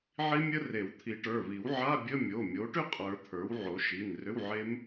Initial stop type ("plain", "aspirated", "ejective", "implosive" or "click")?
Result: aspirated